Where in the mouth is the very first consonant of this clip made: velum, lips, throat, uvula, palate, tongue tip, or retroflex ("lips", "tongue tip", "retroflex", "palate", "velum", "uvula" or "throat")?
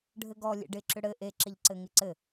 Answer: retroflex